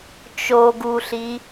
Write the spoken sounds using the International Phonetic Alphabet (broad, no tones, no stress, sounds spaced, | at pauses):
t͡ʃ o ɡ u ɬ i